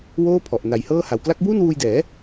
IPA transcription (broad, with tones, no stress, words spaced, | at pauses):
woː˥˩pʰɔ˨˩ʔ na˨˩jhɤː˥˩ha˨˩w kla˦˥k̚buː˥˩nwuː˧jdɛː˩˦